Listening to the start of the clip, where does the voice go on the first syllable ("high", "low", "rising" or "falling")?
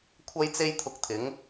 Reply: high